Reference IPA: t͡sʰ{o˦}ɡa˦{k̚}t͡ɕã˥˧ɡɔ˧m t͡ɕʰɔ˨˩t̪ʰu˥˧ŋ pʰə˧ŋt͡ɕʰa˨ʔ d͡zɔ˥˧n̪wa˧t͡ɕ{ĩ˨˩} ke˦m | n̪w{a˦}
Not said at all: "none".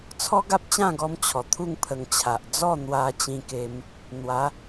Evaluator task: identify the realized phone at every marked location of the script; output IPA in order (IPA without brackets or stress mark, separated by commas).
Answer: ɔ˦, p̚, ĩ˧, a˨˦